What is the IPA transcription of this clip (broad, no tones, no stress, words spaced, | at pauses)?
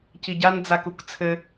ciɟan d͡zakukt͡sʰɘ